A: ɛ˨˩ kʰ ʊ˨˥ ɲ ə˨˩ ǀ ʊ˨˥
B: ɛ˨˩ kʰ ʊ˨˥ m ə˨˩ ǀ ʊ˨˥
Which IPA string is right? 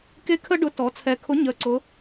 A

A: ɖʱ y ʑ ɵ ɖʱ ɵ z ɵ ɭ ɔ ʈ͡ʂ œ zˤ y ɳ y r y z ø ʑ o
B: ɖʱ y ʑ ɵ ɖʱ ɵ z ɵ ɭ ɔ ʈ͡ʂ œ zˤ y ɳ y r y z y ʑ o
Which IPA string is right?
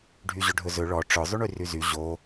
B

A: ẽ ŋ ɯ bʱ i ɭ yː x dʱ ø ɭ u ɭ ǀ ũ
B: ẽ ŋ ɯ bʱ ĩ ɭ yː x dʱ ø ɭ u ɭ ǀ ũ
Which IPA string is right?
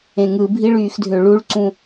A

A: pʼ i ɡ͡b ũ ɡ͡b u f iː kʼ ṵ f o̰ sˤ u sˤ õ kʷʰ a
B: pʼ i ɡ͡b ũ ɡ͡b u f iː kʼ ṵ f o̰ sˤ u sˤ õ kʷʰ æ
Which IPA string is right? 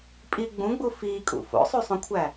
B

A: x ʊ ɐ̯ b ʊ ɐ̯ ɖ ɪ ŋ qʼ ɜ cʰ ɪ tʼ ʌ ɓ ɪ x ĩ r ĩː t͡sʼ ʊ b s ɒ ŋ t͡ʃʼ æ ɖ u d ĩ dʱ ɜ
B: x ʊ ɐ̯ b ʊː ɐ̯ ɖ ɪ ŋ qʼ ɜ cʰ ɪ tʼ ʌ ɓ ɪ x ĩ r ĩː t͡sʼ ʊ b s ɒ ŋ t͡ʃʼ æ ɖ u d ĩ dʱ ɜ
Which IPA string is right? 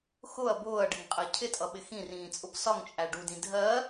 B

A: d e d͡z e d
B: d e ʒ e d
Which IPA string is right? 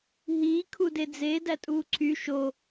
A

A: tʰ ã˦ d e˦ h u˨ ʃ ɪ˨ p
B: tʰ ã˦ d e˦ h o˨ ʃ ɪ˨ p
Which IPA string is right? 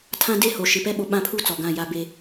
B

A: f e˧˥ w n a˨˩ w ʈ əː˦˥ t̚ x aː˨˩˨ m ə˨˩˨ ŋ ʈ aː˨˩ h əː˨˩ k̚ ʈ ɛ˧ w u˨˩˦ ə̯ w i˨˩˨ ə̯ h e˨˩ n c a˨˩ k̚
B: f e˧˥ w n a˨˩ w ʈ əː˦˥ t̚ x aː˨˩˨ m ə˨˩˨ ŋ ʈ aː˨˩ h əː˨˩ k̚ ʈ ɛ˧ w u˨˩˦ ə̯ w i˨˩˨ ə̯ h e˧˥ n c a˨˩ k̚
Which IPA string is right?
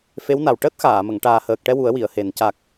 A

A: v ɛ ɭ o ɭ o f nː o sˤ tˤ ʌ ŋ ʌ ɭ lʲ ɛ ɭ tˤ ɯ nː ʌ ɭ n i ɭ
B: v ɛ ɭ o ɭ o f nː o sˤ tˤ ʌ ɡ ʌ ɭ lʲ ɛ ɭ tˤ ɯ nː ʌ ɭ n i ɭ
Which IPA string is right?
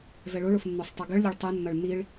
B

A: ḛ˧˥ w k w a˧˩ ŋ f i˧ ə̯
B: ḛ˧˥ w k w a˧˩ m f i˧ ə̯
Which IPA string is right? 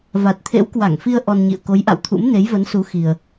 A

